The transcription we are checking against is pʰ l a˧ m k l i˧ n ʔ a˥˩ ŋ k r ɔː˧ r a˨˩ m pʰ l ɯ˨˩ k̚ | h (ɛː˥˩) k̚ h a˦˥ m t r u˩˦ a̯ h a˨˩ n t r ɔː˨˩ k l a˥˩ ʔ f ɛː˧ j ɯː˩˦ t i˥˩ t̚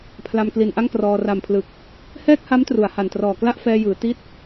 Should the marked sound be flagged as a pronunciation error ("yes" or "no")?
no